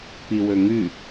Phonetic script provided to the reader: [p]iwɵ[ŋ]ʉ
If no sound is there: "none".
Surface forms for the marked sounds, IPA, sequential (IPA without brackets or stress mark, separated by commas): p, ŋ